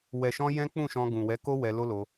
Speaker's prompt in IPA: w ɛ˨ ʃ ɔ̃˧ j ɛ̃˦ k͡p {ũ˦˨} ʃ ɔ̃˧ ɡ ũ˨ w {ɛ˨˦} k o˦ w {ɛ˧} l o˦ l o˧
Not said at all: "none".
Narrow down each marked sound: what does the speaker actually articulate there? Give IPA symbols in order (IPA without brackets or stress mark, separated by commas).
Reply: ũ˦˨, ɛ˨˦, ɛ˧